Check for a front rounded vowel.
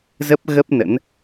absent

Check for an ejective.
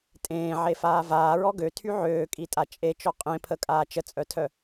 present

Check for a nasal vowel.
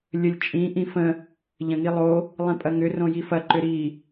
present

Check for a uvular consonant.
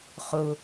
present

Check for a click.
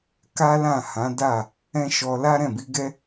absent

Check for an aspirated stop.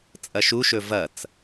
absent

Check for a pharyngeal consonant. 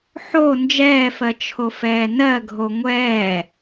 present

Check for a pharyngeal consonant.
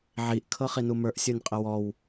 present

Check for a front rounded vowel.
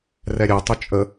present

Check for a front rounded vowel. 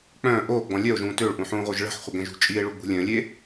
present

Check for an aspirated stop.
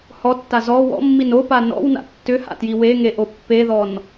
absent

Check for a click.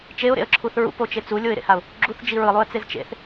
present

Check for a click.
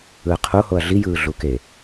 absent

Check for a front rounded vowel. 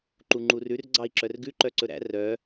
present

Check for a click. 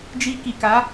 absent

